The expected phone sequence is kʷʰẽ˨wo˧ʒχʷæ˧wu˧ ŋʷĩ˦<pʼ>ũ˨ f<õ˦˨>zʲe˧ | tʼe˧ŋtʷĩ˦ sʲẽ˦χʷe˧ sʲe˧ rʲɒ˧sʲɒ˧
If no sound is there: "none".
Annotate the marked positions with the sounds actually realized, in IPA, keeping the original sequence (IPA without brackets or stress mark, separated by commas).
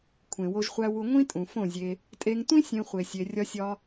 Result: tʼ, õ˦˨